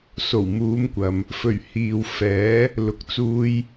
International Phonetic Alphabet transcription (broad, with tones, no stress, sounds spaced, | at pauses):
s o˨˩ w m uː˨˧ m kʷ ɐ˨ m | f ɵ˨˩ ɥ h iː˨ w f ɛː˨˥ | l ʊ˨˥ k̚ t͡s uː˧ j